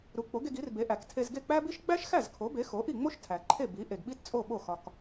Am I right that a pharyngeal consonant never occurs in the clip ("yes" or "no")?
yes